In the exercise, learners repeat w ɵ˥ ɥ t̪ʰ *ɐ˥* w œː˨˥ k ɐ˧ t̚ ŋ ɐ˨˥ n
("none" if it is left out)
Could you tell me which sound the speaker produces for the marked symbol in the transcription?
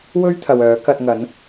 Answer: ɐ˨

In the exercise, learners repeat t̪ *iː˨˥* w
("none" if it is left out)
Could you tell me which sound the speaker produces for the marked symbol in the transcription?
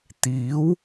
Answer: iː˨˥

